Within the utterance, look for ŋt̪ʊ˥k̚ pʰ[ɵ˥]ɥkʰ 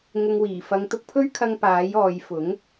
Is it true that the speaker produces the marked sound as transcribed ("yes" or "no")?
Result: yes